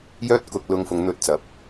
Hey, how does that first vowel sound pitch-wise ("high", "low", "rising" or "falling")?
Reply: high